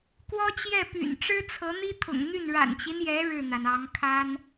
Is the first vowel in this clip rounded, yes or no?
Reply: yes